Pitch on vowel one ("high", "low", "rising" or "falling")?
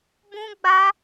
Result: high